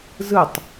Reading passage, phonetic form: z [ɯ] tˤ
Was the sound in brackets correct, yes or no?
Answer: yes